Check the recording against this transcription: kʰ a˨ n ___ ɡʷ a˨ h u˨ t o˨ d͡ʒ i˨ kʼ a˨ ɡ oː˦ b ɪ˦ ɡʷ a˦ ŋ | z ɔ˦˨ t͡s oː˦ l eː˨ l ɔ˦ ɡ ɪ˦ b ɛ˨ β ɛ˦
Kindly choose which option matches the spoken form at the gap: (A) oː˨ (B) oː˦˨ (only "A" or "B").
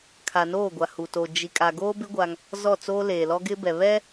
B